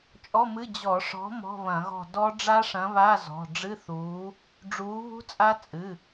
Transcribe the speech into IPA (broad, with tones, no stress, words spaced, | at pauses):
t͡ʃʼɔ˧˥˧mɨ˧˥˧ d͡ʑɔ˧˩˧ ʂɔ̤˨˥ mɔ̤˧˥˧βɐ̃˧˩˧ɣɔ̤˦˨ dɔ˦˥ ɖ͡ʐa˦˥ʂɐ̃˨˥βa˧˥˧ zɔ̤˩˧˩ ɖ͡ʐɨ˧˥˧θuː˨˥ | ɖ͡ʐuː˨˥ βṳ˦˥t͡sʼa˦˥ t͡sʼɨ˩˧˩